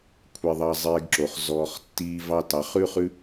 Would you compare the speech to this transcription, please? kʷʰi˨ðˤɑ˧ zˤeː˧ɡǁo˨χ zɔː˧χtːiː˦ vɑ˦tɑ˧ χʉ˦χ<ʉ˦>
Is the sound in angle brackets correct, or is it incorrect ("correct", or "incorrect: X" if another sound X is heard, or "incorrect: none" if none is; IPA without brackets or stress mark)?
correct